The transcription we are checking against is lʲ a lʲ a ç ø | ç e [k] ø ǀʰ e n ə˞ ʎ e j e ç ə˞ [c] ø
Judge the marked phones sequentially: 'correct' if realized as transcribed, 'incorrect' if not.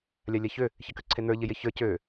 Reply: correct, correct

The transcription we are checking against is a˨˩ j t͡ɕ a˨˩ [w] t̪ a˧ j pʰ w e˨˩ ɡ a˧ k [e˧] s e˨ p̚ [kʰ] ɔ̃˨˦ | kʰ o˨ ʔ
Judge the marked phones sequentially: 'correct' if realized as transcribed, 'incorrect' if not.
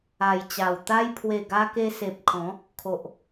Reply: correct, correct, correct

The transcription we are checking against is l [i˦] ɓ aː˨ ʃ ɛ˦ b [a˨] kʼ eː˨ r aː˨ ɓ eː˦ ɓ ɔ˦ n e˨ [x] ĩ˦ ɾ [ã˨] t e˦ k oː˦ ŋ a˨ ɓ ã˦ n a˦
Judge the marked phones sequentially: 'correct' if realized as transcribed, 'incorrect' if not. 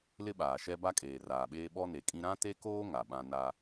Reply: incorrect: ɪ˦, incorrect: a˦, incorrect: kʼ, incorrect: ã˦

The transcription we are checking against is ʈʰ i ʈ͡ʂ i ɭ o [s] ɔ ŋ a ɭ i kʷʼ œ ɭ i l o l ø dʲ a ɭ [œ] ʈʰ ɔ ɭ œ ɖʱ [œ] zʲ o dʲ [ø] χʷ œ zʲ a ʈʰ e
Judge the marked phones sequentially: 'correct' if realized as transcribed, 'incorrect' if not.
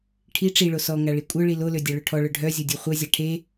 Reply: correct, incorrect: ø, correct, incorrect: u

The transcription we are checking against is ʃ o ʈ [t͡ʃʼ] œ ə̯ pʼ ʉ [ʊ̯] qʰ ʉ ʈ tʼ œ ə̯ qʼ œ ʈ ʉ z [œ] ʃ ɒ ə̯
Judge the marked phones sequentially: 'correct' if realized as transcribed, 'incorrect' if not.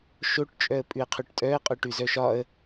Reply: correct, incorrect: ə̯, correct

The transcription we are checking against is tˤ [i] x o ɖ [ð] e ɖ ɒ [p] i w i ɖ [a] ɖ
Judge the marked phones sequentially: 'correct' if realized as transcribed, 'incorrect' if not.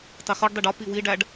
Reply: correct, incorrect: dˤ, correct, incorrect: æ

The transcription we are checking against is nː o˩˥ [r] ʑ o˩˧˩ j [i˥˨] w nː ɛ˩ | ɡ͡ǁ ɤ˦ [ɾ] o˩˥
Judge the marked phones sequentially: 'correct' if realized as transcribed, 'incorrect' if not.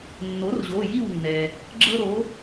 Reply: correct, correct, correct

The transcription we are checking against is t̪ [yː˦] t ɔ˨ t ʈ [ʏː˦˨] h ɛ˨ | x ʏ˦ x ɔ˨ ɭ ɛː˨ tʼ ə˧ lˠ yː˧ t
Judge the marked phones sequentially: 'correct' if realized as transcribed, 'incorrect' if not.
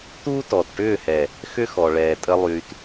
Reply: incorrect: uː˦, correct

